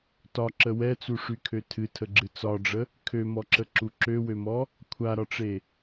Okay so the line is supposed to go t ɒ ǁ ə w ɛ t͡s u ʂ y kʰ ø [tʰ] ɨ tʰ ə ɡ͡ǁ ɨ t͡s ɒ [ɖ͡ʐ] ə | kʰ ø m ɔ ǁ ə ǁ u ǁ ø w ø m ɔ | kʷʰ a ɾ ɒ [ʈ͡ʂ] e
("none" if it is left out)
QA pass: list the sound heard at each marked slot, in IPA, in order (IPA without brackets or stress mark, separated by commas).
tʰ, ɖ͡ʐ, ʈ͡ʂ